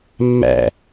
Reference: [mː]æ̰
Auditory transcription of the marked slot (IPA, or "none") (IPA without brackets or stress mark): mː